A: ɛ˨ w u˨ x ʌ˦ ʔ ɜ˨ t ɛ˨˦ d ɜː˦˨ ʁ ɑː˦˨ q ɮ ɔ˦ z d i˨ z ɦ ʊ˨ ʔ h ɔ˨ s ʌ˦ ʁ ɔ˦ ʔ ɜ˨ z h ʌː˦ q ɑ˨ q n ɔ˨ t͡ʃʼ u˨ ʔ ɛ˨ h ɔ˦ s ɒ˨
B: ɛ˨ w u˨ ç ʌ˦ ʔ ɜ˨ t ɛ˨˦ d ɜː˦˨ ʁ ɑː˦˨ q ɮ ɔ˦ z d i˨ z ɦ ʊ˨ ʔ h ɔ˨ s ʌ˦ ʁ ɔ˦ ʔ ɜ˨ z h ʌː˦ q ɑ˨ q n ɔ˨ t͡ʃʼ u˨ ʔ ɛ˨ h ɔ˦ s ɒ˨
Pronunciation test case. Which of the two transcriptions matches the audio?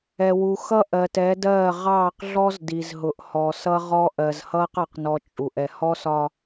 A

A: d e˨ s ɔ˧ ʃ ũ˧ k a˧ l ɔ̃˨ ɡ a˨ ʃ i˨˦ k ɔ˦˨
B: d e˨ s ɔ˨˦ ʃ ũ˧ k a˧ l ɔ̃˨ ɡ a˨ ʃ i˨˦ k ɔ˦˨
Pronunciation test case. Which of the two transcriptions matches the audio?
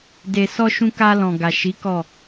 A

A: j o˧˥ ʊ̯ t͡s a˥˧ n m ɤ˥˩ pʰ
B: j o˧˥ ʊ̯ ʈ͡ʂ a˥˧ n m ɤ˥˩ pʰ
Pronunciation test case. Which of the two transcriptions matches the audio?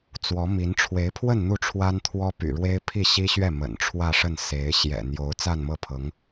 A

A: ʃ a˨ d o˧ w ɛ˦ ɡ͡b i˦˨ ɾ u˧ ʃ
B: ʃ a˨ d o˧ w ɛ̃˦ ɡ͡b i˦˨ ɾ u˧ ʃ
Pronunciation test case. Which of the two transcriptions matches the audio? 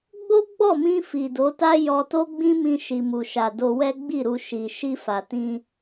A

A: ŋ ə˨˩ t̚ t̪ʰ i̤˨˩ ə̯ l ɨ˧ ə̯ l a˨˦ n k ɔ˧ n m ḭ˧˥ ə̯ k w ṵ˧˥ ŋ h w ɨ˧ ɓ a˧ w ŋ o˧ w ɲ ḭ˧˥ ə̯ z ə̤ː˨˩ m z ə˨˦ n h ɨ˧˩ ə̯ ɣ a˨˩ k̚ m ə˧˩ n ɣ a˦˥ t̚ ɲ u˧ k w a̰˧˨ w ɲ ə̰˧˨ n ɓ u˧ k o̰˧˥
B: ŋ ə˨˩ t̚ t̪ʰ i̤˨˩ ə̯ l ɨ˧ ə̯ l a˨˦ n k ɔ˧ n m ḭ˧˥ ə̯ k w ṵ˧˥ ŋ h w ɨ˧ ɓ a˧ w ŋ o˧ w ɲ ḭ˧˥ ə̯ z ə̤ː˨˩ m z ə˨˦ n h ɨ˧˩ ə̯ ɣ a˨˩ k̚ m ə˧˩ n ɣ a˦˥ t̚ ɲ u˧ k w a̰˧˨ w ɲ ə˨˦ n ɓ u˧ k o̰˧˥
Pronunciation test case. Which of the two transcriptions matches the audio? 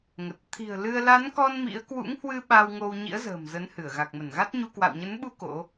B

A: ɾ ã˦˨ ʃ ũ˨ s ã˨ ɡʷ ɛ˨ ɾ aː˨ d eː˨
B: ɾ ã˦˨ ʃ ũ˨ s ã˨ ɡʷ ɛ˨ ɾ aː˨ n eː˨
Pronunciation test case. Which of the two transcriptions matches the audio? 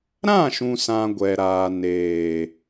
B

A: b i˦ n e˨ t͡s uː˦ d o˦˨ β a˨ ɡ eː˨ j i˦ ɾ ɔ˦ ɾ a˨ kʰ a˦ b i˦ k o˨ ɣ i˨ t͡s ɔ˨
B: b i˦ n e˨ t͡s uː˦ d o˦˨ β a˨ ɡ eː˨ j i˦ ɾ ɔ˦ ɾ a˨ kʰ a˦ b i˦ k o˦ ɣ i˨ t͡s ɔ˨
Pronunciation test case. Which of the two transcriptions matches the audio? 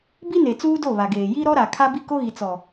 B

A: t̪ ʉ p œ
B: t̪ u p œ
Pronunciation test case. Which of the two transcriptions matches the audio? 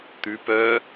A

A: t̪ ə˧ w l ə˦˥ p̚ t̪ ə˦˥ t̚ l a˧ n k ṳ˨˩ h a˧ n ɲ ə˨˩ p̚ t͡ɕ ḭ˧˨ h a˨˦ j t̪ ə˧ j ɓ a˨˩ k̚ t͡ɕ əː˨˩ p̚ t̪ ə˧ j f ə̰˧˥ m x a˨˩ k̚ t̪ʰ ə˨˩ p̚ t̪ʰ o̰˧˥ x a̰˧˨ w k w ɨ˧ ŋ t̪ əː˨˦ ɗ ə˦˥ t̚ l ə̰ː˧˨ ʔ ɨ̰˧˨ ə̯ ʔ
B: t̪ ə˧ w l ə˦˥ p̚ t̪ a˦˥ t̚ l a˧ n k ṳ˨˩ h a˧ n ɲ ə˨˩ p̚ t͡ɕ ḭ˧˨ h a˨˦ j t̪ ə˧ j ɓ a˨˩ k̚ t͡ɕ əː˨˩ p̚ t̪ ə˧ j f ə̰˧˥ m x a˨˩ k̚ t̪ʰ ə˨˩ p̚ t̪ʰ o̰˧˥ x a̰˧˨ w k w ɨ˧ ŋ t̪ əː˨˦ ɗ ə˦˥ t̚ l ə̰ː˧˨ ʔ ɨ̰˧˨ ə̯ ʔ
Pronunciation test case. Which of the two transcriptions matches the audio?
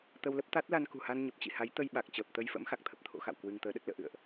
B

